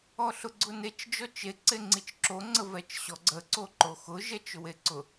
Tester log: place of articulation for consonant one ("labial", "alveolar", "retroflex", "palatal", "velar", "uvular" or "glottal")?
alveolar